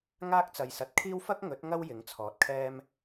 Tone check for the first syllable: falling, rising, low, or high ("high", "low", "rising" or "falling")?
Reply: high